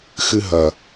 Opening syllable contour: high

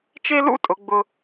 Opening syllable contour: high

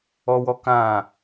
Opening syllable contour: high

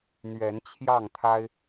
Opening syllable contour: rising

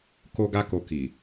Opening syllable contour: high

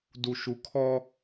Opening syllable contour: low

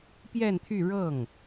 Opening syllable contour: falling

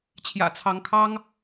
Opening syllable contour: low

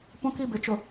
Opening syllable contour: high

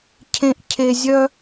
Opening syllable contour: high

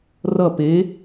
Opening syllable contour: falling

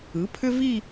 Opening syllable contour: rising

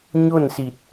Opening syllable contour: falling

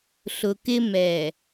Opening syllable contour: low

